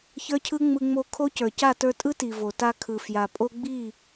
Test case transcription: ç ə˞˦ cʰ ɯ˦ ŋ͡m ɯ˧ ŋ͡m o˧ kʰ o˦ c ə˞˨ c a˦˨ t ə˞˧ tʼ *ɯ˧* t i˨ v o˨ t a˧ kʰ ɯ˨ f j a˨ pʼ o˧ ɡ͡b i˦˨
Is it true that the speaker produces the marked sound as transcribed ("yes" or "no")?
no